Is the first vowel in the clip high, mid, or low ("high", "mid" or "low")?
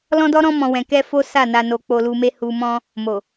mid